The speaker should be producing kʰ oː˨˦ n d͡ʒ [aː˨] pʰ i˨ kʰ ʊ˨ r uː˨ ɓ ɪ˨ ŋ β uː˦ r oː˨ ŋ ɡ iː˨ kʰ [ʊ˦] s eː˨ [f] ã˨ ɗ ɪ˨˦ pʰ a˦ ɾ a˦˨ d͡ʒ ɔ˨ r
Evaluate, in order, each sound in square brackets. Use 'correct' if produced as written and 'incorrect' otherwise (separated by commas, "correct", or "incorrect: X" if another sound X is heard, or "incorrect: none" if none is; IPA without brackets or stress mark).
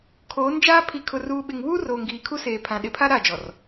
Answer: incorrect: aː˦, incorrect: u˦, incorrect: pʰ